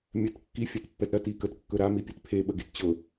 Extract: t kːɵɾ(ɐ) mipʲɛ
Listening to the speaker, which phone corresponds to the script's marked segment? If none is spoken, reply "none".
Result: a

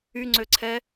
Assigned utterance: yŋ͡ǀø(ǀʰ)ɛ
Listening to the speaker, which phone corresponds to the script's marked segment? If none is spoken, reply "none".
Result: ǀʰ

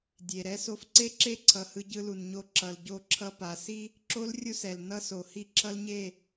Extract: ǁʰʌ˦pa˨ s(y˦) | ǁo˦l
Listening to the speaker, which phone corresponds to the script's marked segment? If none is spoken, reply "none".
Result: i˦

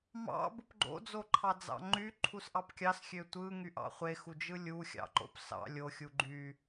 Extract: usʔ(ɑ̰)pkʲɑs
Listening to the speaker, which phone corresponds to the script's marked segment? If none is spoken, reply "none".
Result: ɑ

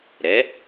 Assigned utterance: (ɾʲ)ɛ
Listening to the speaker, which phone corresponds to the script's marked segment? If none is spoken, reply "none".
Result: ɾ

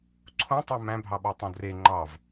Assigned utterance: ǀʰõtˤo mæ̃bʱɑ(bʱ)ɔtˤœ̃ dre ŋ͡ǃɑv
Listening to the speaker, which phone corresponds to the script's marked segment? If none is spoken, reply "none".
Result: ɓ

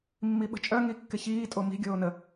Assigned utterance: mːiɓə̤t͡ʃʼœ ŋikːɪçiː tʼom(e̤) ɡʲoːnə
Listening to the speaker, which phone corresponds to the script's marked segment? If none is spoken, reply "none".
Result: i̤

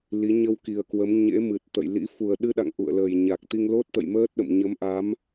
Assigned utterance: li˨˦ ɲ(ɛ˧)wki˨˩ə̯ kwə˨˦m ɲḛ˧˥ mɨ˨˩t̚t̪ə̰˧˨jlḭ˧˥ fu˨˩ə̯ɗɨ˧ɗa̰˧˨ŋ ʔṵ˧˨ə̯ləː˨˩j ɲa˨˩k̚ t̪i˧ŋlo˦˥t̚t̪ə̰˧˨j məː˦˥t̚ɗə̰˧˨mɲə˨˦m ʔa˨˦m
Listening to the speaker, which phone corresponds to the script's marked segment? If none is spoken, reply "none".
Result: ə˧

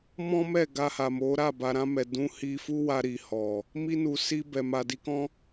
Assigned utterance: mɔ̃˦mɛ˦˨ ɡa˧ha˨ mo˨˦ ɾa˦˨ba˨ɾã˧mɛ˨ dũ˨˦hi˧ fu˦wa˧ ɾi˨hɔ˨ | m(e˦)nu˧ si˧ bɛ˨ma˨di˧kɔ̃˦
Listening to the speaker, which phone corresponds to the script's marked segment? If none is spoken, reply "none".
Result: i˦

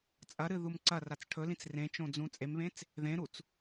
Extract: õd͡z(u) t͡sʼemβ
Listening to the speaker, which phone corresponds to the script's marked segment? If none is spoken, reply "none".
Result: ũ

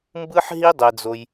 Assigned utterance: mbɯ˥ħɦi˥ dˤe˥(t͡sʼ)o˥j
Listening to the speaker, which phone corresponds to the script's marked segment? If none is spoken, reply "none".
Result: d͡z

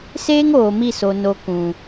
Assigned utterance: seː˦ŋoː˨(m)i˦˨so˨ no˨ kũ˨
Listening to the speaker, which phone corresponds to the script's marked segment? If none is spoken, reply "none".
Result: m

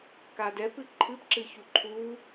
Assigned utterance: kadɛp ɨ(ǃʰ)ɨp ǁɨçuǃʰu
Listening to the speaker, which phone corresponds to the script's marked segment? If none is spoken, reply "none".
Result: ǃʰ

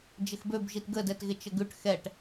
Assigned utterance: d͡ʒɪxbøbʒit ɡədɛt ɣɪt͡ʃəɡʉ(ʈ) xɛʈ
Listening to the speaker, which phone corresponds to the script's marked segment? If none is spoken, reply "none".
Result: ʈ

